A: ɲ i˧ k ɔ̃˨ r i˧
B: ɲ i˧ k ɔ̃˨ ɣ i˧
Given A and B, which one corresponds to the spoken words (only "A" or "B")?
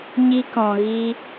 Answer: B